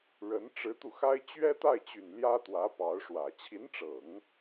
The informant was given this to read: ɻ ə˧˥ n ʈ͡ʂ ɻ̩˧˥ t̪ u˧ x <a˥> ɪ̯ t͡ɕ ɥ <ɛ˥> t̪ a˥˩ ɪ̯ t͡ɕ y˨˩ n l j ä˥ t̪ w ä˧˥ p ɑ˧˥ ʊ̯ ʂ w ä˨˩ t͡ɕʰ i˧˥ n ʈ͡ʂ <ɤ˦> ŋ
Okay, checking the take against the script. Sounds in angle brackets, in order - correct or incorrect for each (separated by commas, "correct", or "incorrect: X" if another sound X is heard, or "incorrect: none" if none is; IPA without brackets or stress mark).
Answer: correct, correct, incorrect: ɤ˨˩˦